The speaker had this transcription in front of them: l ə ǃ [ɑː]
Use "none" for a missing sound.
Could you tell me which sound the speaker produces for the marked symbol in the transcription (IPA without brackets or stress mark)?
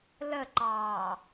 ɑː